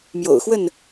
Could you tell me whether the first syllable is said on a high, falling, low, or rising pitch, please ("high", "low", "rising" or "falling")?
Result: low